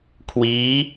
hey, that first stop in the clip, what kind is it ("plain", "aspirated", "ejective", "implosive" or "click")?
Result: aspirated